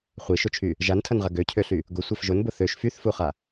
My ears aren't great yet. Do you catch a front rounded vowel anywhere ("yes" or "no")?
yes